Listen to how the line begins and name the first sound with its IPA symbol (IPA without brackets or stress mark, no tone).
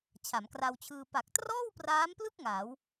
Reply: t͡ɕʰ